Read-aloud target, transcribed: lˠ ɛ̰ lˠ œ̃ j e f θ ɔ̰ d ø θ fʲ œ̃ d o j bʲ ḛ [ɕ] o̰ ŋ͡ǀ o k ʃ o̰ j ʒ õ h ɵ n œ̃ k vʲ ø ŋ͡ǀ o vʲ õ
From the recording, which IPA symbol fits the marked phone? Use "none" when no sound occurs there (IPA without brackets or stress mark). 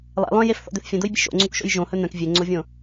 ʃ